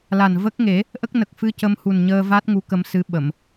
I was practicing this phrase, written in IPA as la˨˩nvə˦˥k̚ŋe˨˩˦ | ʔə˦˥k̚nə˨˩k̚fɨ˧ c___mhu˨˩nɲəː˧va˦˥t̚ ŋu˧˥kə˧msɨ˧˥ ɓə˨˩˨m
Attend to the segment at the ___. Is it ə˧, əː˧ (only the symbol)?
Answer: ə˧